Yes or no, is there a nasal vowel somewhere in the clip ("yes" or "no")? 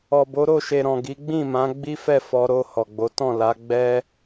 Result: yes